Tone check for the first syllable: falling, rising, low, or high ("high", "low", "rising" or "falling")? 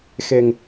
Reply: low